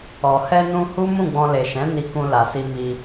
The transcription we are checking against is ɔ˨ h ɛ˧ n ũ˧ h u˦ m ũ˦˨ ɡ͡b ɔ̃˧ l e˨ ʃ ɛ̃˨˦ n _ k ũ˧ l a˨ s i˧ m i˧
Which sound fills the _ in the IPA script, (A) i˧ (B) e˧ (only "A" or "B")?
A